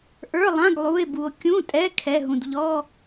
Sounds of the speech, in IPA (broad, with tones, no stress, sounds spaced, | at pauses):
ʔ ə˞˧˥˧ lˠ ã˧˥˧ ɡ lˠ u˧˥˧ e̯ b u˧ o̯ kʲ ũ˧˥˧ tʼ ɛ˧˥˧ kʰ ɛ˧˥˧ ɦ ũ˧ d ʎ ɔ˧˥˧